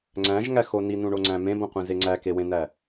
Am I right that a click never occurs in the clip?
no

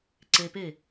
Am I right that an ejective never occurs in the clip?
yes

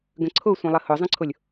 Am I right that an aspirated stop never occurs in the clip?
no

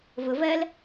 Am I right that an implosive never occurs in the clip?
yes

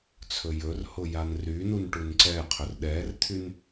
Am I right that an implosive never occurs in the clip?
no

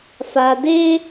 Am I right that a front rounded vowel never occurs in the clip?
yes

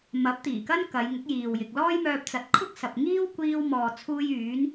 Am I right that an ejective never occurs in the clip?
yes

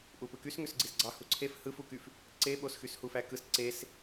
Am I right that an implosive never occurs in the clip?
no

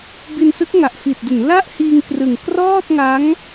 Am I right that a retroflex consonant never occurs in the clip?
yes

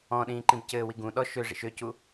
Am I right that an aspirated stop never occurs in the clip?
yes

